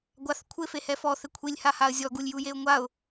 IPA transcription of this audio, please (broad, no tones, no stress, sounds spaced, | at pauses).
ɡʷ a θ kʷʰ ɪ f e h ɛ f ɔ θ ɪ kʷʰ i lʲ h a h a ə̯ zʲ ɔ ɡ u lʲ j u j e ʊ̯ ŋʷ a ʊ̯